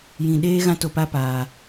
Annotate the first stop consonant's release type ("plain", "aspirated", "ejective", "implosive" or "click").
implosive